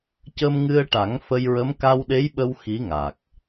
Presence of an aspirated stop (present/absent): absent